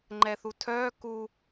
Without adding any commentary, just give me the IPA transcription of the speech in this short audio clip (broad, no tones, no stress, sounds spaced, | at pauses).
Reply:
ŋ͡ǃ ɛ θ u tʰ œː k u